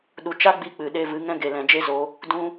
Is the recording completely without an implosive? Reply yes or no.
no